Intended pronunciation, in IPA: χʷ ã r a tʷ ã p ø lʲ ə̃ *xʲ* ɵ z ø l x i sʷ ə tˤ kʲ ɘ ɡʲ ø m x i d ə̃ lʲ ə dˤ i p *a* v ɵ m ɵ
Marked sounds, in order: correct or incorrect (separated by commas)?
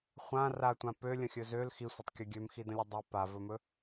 correct, correct